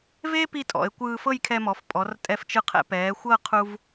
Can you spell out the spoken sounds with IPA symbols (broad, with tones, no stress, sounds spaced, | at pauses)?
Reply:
v e˥ p i˥˧ tʼ ɔ̰˩˧ e̯ kʷ ɯː˧ f ɤ˥˧ j kʰ ɛ˧ m ɔ˩˧ f pʼ ɔ˩˧ r tʼ ɛ˧ f t͡ʃ ɯ˧ qʰ ɛ̰˧ p ɛː˩˧ xʷ ɤ˥˧ qʰ u˧ v